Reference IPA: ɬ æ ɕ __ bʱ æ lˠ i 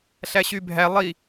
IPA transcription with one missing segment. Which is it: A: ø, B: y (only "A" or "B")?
B